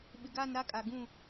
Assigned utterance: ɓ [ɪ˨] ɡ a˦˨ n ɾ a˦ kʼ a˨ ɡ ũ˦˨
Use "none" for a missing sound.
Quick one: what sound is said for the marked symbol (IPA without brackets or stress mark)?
ɪ˨